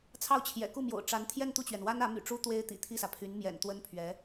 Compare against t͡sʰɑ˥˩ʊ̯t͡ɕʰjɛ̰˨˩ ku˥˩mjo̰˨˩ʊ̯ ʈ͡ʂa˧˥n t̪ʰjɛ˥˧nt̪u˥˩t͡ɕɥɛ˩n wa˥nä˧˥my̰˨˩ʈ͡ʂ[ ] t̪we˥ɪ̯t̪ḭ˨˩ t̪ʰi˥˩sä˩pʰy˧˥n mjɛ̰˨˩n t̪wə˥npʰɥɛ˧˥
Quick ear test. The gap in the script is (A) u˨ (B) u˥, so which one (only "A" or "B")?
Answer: B